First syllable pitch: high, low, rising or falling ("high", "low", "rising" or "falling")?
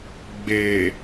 low